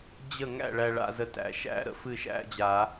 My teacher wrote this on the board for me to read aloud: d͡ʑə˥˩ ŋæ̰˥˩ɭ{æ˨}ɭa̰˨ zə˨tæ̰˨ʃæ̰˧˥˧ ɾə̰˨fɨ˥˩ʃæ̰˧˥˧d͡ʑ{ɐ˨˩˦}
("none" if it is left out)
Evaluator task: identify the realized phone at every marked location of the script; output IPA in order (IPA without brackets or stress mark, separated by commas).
æ˨, a˨˩˦